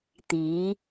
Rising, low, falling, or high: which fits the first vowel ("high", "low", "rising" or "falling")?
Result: rising